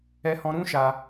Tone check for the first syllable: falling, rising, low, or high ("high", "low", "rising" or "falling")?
high